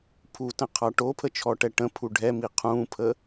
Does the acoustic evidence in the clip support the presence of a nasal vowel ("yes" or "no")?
yes